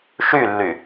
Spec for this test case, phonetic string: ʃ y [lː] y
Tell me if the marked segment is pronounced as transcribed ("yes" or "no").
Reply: yes